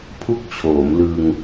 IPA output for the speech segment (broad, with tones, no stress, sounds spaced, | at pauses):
pʰ u˥˩ k̚ t͡ɕʰ oː˩˦ m l ɯ˧ ŋ